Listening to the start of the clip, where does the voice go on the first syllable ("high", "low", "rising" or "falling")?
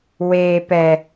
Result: low